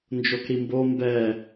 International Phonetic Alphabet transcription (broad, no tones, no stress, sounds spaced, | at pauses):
n d͡ʒ o k ɾ i m b o m b ɛ